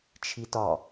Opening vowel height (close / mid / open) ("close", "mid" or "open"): close